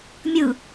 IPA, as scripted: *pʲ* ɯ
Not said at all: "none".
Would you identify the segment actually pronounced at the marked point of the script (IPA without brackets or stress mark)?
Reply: mʲ